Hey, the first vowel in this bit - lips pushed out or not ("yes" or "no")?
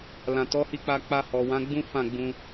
no